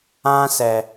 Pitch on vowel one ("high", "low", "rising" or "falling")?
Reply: high